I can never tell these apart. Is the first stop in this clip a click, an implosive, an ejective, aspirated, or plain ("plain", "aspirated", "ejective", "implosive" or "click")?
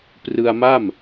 plain